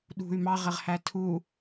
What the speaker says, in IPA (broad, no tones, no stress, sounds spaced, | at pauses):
ɗ ṳ y̯ m ɑ ʁ ɪ ʁ h æ tʰ u